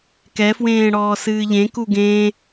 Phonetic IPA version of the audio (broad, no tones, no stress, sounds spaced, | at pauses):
k ɛ f w ẽː ɽ ɔː s ɨː ʎ ẽ k u ɡ ẽ